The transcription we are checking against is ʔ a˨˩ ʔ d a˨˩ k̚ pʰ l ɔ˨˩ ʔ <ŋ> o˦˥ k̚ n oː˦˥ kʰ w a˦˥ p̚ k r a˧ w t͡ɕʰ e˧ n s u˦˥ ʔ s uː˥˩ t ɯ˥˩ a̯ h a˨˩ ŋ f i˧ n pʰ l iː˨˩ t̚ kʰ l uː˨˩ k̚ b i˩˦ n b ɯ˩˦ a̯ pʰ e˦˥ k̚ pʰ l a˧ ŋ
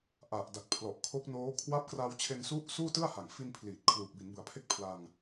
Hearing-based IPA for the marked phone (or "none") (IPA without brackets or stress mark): kʰ